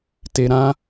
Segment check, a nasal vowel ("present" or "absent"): present